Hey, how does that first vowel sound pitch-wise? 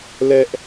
high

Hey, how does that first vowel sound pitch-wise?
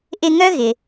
high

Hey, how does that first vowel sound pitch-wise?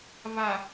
low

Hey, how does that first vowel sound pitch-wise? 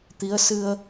rising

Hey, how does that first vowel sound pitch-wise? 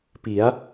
rising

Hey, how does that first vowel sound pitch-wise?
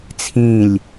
falling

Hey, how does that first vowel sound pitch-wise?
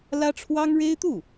high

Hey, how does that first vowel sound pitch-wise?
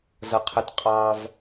low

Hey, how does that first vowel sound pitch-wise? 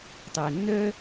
low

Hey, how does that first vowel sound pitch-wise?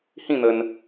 falling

